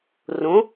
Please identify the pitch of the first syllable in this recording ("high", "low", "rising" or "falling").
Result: rising